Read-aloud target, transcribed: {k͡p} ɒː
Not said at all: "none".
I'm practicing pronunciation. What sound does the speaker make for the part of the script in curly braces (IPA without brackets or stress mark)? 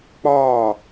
k͡p